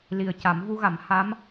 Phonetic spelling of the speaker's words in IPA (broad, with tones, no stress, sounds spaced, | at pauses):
l i˨˩ ə̯ c a˨˩˦ m v u˧ ɣ a˨˩˦ m h a˧˥ m